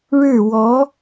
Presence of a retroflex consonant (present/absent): present